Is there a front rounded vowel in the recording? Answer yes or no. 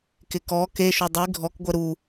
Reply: no